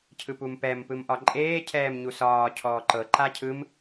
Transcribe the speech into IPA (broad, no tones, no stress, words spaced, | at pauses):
cʰɯpumpɛm pɯmʔɒǃʼeː cʰɛːmɲusɒː cʰɔːǃɤ ǃacʰɯm